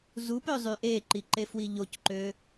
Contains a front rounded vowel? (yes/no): yes